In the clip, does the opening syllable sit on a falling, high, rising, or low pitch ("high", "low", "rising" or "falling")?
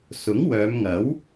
rising